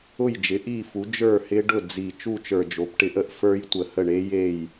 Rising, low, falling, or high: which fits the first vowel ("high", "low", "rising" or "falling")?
falling